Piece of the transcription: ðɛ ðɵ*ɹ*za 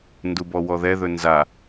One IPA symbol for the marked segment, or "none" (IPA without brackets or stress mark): n